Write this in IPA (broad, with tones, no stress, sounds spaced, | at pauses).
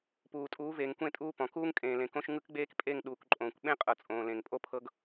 p uː˨ tʼ uː˨˦ v eː˨ ŋ kʷ ẽ˦˨ tʼ uː˦ p ɔ̃˨ k uː˦ ŋ kʼ ẽː˨ l ẽ˨ k õ˦ ʃ ŋ ɯ˦ k ɡ͡b eː˦ k pʼ e˦˨ ŋ ɗ uː˨ k ǃʼ õː˨ kʷ ɓ ẽ˦ qʼ ɤ˨ t͡sʼ õː˨ l ẽ˨ ŋ pʼ o˦ pʰ ɤ˦ ɡ